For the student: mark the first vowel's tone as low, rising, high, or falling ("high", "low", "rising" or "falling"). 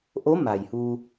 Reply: rising